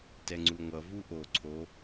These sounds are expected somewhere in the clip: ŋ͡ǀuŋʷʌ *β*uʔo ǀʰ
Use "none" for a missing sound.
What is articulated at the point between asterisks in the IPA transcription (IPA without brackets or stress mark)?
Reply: v